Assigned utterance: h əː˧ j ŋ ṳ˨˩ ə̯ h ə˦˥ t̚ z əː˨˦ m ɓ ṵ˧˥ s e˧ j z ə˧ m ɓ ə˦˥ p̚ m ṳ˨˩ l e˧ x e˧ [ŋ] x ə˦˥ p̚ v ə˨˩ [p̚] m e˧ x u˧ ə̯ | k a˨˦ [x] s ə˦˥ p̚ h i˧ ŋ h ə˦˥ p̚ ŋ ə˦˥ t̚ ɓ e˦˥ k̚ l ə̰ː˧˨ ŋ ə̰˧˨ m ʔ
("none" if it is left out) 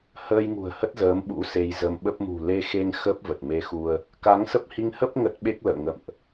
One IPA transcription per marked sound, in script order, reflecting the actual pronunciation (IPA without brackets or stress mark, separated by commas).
ŋ, t̚, ŋ